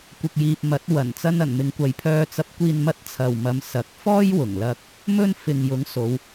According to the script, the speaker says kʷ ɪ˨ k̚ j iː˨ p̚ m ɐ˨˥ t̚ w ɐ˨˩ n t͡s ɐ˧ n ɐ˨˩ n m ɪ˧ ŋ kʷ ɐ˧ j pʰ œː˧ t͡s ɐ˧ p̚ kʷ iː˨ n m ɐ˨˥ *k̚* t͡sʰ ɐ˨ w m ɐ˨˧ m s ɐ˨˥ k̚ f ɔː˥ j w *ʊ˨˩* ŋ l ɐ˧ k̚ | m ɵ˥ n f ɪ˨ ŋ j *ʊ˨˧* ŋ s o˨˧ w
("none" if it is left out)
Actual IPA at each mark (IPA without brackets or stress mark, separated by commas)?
t̚, ʊ˨˩, ʊ˨˥